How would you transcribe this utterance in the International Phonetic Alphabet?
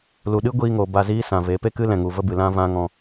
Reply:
lu˨ɗɨ˦ ɡʷiː˧ŋo˨ ba˧ziː˦ sã˨ve˨˦ pe˦kɨ˦lɛ̃˨ŋu˨ və˦bɨ˨lã˦ vã˦ŋɔ̃˧

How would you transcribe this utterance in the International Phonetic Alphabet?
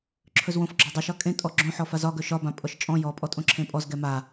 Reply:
ǁʰɵzwõf ɡ͡ǁɒdˤeʃɒ kʼẽtʼɔ ɡ͡ǁõ ħɔfazɒ ɡɵʃɒbã pʼɔʃt͡ʃʼɔ̃ jɔpʼɔtʼõ ǁʰẽpʼɔz ɡɛma

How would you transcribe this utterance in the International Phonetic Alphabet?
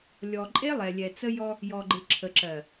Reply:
lʲɔ˨ǃʼe˦ lˠɛ˨lʲɛ˨t͡sə˦jɔ˦ | jɔ˨ɡ͡ǃɪ˨ ǁʰə˨ǁɜ˨

